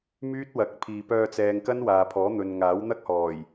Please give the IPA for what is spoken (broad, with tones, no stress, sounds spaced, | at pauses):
m yː˥ t̚ w ɐ˨˥ k̚ pʰ iː˨ p œː˧ t͡s ɛː˨ ŋ k ɐ˥ n w aː˨ pʰ ɔː˨˥ n̪ ɵ˧ n ŋ aː˨˥ w n̪ ɐ˥ k̚ h ɔː˨˩ j